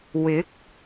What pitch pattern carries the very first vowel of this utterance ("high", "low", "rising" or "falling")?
rising